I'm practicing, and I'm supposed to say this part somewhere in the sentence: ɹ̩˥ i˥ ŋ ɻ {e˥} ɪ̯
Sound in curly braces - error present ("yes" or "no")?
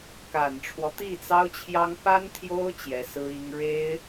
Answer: no